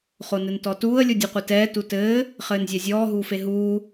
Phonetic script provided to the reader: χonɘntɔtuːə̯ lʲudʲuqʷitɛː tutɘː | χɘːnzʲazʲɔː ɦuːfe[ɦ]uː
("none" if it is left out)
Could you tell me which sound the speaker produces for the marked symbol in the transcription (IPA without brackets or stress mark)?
ɦ